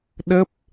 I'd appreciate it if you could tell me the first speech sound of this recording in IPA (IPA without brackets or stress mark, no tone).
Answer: ɗ